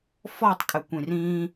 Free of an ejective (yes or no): no